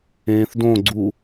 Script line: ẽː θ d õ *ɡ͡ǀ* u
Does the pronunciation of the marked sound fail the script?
no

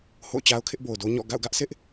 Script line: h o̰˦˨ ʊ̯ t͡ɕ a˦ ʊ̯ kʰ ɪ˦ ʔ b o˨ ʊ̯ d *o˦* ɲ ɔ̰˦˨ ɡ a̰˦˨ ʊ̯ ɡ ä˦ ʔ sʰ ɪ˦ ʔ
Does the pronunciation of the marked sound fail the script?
no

